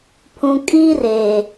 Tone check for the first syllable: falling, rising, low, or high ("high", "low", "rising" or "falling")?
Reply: low